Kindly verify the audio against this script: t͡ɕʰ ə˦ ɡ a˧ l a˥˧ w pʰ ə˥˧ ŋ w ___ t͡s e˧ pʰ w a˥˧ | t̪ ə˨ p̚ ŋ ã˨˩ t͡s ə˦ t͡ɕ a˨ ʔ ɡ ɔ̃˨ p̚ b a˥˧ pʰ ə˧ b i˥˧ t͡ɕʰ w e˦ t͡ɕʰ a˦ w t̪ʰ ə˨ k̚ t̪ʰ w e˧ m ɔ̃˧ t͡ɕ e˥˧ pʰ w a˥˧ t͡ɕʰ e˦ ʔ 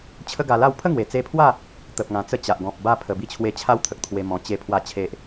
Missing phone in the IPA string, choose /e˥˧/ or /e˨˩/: e˨˩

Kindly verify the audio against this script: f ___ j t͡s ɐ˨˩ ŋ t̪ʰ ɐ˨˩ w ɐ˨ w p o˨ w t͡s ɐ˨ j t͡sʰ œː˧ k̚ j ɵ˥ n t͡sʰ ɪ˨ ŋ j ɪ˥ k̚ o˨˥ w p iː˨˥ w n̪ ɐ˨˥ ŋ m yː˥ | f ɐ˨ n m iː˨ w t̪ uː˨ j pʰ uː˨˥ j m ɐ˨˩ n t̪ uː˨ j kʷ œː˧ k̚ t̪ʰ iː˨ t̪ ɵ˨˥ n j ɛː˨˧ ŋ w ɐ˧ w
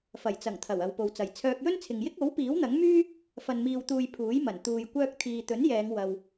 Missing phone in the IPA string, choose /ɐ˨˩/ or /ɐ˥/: ɐ˨˩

